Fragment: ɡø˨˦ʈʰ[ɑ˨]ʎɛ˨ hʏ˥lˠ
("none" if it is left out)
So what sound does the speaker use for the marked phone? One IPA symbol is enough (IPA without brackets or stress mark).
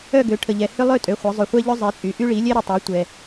ə˨